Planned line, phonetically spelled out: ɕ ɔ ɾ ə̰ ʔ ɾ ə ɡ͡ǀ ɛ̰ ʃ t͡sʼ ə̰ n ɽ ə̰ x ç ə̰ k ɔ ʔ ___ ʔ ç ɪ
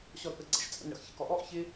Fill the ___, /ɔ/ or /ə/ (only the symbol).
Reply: ɔ